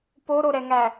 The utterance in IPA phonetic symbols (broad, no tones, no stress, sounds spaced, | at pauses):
p o ɾ o ɾ ɛ ŋ æ